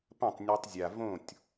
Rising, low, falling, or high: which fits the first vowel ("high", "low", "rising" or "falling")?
falling